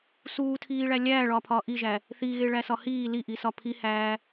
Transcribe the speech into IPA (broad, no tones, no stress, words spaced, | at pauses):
suːtʰiːɭæ lʲæːɭɒːpʰɒː ʔiʒæ | θiɣeɭæsɒ hiː liʔisɒ pʰihæː